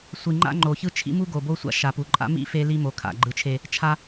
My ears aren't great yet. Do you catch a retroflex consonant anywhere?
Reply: no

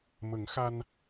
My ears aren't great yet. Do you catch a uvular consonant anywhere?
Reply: no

